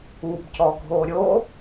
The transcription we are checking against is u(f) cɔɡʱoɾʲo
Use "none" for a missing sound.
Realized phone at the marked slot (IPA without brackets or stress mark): b